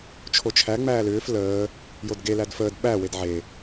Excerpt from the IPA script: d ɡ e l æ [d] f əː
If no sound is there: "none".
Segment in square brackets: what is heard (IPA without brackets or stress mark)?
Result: d